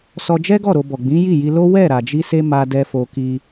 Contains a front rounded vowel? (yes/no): no